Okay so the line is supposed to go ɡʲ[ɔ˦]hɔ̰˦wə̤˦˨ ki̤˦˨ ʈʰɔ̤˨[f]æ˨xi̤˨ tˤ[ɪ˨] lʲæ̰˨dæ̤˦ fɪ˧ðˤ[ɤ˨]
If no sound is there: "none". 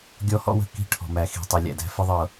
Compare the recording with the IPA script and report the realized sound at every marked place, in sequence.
ɔ˦, m, ɪ˨, ɤ˨

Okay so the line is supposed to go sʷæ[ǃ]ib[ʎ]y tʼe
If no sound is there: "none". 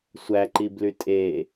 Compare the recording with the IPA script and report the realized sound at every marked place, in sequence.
ǃ, l

